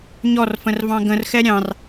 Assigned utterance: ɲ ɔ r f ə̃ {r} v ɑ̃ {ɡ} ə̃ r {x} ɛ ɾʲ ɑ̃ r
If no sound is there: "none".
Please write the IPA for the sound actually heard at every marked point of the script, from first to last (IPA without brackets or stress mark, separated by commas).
r, ɡ, x